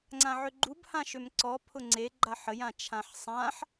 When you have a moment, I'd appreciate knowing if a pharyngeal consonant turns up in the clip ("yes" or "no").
yes